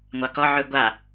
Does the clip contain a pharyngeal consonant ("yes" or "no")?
yes